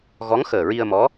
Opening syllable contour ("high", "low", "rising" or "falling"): rising